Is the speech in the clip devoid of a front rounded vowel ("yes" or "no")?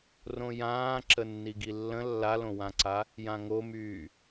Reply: no